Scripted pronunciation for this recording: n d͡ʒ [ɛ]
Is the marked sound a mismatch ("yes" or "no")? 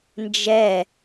no